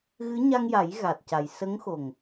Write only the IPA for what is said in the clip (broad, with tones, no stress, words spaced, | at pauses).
ɣɨ˧˥ ɲa˧ŋja˨˩˦j ɣa˨˩t̚ca˨˩j sə˧˥ŋxo˨˩ŋ